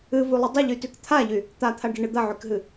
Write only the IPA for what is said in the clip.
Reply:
ɨvulˠɪ dˤɪʎytyk t̪ʰaʎy | t̪at̪ʰaɖɐɳɨ d̪ɐʕykɦɨ

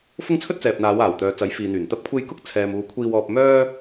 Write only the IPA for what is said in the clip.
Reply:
fʊ˥ŋt͡sʰɵ˥t̚t͡sɛː˨p̚ n̪aː˨˧waː˨˩wt̪œː˨ t͡sɐ˨˥jfiː˨n̪yː˨˩nt̪ɐ˥p̚ kʷʰe˧j kʊ˥k̚t͡sʰɛː˨muː˨ kʷʰiː˧wɔː˧p̚ mœː˥

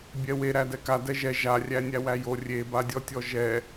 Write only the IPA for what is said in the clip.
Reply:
bʲɛwe ɾædɛka dɛʒɛ ʒa rʲænʲæwæjo rʲebadʲɔtʲɔ ʒɛ

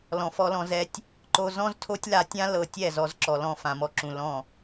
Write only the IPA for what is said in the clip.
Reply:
lɔ̃˨fɔ˧lɔ̃˧ zɛ˧tʲ | ǃo˧ zɔ̃˦ztʰo˦tʲla˧ tʲã˦ lɤ˧tʲɛ˦˨zɔ˧z ǁɔ˨lɔ̃˧ fã˨mɔ˧ǁũ˨ lɔ̃˦˨

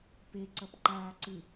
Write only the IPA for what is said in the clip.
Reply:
pe ǀʌpǃaːǀɨ

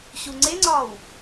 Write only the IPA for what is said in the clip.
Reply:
ɕuŋ͡ǀeŋ͡ǀɒːw

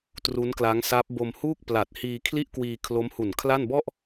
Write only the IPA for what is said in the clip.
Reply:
tru˦˥nkla˦˥ŋsa˦˥p̚ bo˧mhuː˥˩k̚pla˨˩t̚hiː˧ kʰli˥˩ʔkwiː˧ kʰlo˦˥mhu˨˩nkʰla˥˩n bɔ˥˩ʔ

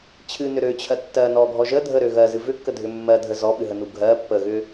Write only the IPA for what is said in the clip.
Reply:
t͡ɕʰɨnʏ ɾøt͡ɕʰɜ tːɜ nɔɡʱɔ ʒə dʱəɾø ɣɜzɨ vʏkːədʱʏ mːɜdʱə zɔɓɨɦənu ɡʱɜ pːəɣʏ

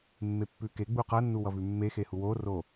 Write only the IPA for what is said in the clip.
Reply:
mːepːʉkeɡ͡bu qʌnːu wʌvʉmːexe huworo

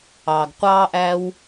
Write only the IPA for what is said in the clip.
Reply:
ɑ˩ɡqʷɑː˥ʔæ˥w

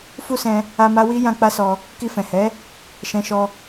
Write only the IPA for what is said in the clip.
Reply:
fu˦sɛ̃˧ | a˦ma˦ wi˦ jã˦k͡pa˦sɔ˧ | ki˧fɛ̃˨hɛ˨˦ | ʃɛ̃˧ʃɔ˧

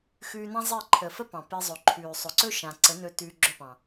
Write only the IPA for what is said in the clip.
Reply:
xʉː˧nã˦ zˤe˦˨ǃʰə˨fə˦ pɑ̃˨pe˧zˤɵ˨ǃʰʉː˨ sˤɵ˨ǀɵ˦ ʃã˨ǀə˨˦nɵ˧ tʉː˧ɡ͡ǁɵ˦˨pɑ̃˨

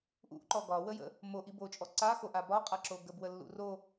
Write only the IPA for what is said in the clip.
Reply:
ʔṵʔǃɔ ɡɒwəjə̰ | moʔi bot͡ʃʼɔ ǀaxoʔa bɒqʼaǁo ɡəbwəlːṵ ro

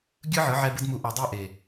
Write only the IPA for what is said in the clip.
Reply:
ɡʲɯ˦ʕɯ˨˦ʕɛ˧ bɯ˦dmu˧ ʔɛ˨dˤe˦˨ ʔe˨

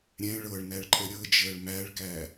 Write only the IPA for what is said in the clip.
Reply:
ɾʲɛ̃ ɭɤɭnæɭǃʼə ɾʲɤd͡ʒəːɭ mæɭkæ

